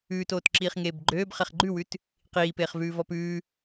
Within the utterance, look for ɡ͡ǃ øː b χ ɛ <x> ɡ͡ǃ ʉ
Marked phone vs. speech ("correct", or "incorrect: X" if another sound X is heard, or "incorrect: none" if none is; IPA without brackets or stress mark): incorrect: χ